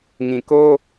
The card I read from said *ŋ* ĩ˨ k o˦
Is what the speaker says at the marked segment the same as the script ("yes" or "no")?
yes